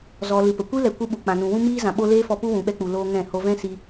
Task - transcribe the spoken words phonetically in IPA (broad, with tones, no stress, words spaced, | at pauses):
zɔ˨ lɨ˨pə˨ kʷi˦lɛ˨ kʷɨ˧ ɓu˨ k͡pã˨nũ˨wũ˦miː˦ zã˨ɓo˧ leː˦fɔ˧ pu˦wũ˨ɓɛ˧k͡pu˨ loː˧ ŋɛ̃˦˨ho˦ vɛ̃˦si˧